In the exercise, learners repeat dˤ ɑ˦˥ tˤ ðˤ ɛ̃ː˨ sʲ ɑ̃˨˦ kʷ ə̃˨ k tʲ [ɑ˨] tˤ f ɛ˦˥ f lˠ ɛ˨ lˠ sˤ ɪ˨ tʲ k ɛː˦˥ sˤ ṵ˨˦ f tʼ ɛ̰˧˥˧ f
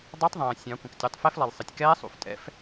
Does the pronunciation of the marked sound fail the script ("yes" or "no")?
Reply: yes